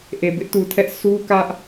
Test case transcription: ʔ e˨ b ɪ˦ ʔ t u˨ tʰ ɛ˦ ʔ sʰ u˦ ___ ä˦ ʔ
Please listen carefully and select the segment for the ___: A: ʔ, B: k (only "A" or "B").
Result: B